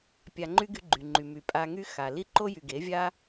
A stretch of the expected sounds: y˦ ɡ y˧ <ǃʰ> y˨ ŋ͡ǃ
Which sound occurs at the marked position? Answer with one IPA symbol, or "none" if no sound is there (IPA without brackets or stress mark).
ɡ͡ǃ